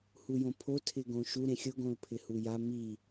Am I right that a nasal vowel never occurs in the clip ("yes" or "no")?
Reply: no